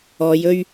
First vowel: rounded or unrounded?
rounded